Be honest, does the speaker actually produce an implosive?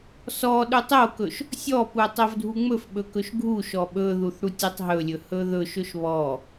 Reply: yes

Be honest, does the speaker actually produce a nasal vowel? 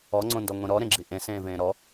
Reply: yes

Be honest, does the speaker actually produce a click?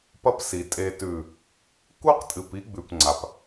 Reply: yes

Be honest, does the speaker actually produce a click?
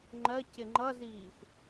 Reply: yes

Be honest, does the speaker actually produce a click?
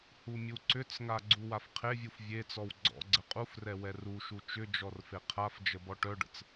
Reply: yes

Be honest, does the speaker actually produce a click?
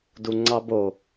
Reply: yes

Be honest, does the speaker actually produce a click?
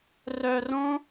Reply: no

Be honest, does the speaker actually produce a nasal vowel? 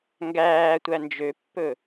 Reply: no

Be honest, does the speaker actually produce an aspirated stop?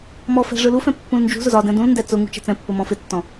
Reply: no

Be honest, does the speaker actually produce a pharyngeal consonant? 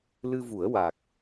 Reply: no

